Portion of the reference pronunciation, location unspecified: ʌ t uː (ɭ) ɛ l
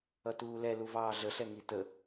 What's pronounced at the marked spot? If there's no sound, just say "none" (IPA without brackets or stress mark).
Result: l